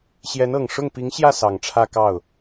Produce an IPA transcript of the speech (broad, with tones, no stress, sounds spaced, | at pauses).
ɕ j ɛ˧˥ n ɤ˨˩ ŋ ʂ ʊ˥˩ ŋ p i˧˥ ŋ ɕ j ä˥˩ s ɑ˨˩ ŋ ʈ͡ʂʰ ä˥˧ k ɑ˥˩ ʊ̯